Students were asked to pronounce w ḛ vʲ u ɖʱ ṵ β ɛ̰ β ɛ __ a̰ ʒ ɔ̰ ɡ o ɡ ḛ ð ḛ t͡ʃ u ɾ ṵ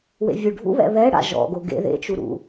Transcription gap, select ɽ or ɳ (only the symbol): ɽ